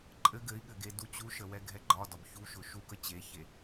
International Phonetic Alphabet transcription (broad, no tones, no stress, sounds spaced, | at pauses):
ǃʼ ɘ ɡ ɘ i̯ ɠ ɘ ɡ e d u t͡ɕ u ʃ ə w ɛ ɡʱ ɛ ɡ͡ǃ ɒ d ɒ b ç u ʃ ʊ ʃ u k ə t͡ɕ e ç e